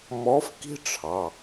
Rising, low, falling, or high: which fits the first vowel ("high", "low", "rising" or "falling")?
rising